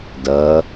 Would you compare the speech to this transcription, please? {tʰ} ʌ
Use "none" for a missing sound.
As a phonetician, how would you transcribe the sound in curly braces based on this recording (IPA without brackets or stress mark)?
d